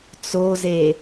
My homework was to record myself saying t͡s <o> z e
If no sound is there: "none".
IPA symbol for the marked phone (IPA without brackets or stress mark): o